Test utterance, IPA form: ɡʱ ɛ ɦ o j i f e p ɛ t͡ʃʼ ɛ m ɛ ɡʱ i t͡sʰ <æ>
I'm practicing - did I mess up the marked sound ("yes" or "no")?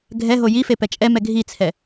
yes